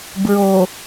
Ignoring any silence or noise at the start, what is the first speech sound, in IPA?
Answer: b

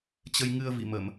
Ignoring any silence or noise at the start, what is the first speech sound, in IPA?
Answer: t͡ɕ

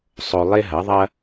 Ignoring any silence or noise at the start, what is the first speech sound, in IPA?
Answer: sˤ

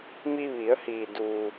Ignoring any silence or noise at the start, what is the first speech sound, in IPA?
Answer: m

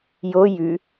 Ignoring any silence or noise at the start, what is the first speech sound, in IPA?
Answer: j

